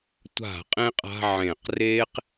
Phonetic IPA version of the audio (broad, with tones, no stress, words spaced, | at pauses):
tʷa̤˧˩˧ qʼẽ˥qʼa̤˧˥˧ ʕẽ˧˩˧q reː˥q